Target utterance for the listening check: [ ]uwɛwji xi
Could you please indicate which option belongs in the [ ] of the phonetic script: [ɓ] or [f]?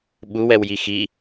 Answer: ɓ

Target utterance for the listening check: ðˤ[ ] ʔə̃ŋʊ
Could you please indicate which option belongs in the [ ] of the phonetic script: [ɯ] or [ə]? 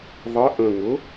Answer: ə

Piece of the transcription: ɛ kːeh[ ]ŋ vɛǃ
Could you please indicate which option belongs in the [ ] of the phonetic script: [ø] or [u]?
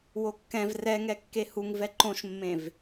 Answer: u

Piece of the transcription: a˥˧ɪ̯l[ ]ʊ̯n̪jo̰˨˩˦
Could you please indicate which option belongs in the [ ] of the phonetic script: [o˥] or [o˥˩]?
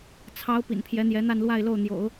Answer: o˥˩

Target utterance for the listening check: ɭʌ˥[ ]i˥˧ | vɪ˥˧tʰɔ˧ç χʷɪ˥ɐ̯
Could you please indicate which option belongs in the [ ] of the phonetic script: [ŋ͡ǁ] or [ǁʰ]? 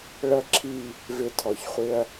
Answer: ǁʰ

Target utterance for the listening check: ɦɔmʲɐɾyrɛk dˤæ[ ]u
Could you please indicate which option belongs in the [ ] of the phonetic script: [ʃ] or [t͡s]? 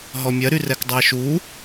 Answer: ʃ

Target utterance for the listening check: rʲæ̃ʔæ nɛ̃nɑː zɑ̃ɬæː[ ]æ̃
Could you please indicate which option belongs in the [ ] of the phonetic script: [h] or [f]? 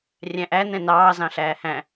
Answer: h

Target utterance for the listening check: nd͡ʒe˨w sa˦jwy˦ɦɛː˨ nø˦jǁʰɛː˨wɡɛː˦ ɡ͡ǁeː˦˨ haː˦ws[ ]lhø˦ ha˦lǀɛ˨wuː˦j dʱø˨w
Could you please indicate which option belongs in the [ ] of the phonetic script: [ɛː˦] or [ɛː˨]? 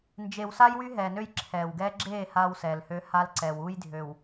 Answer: ɛː˨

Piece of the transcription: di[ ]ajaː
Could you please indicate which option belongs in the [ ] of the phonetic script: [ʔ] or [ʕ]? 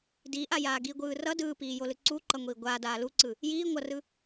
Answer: ʔ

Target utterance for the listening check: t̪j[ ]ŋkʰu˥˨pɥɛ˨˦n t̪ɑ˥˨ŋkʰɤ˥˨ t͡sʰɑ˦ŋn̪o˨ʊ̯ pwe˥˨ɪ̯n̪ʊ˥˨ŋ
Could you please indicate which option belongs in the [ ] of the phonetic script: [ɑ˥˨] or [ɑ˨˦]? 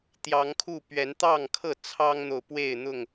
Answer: ɑ˨˦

